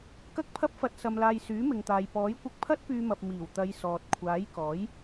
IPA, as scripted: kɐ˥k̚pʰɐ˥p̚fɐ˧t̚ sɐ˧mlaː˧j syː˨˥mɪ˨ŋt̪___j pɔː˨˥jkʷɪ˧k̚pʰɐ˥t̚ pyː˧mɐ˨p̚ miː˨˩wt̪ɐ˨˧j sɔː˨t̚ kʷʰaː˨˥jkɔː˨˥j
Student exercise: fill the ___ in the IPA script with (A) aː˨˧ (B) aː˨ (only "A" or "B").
B